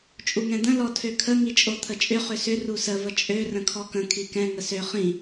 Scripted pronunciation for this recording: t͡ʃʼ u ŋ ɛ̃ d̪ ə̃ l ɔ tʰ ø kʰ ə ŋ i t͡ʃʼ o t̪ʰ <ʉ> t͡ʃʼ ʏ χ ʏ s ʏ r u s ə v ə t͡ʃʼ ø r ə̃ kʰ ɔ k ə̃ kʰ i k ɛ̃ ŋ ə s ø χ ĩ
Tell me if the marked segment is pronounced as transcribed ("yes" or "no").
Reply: no